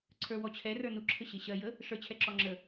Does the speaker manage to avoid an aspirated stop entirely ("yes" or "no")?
no